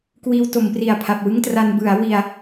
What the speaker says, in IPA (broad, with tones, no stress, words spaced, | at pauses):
kwiː˧wto˩˦mpri˨˩a̯ pʰa˨˩p̚wɯ˥˩ŋtra˧n bɯ˩˦a̯wi˧a̯